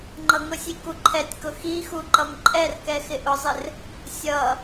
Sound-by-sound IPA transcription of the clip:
ŋ͡ǃ ʌ ŋ ʊ sʲ i k u ǃʰ ɛ tʲ k ʊ x i x u ǃ ʌ m ǃʼ ɛ r k ɛ x ɪ ʔ ʊ zˤ ɪ r | sʲ ʌ

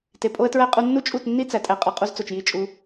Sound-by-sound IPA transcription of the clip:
t e˨ pʼ o˦ ə̯ t ɹ æ˦ qʼ u˧ nː u˦ t͡ʃʼ u˦˨ t nː i˦ t͡s æ˨ tʼ æ˧ qʼ ɒ˧ qʼ u˧ z t͡s o˨ t͡ʃ j i˦ t͡ʃʼ u˧

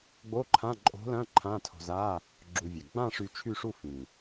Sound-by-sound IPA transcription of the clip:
ɡ͡b o˧˥˧ ǃʰ ã˧˥˧ ǃʼ o̤˧˥ l ɐ̃˧˥˧ ǃʰ ã˧˥˧ tʰ o̤˧ z a˧˥˧ | ɡ͡ǁ u˧ vʲ ɛ˨˩ ɡ͡b ã˥˧ ʂ y˧ t͡ʃʰ y˥˧ ʂ u˥˧ f ĩ˨˩

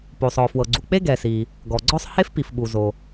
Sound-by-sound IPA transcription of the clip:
p o˩ sˤ ɔ˩ f w ɤ˩ ɡ͡ǀ u˩ k͡p e˥ ɡ ɛ˩ s i˩ | ɡ ɔ˩ ɡ͡ǀ ɔ˥ sˤ h e˥ f p i˩ f ɓ u˩ z o˩

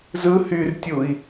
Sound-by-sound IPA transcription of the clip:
z ɯ h y r tʲ u i̯

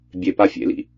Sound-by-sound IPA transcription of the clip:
bʲ e p a fʲ ḛ l ḭ

